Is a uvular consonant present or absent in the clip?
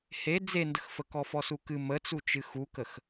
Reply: absent